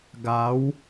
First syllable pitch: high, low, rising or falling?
rising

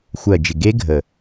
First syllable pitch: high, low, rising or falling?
low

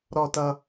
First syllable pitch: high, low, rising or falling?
low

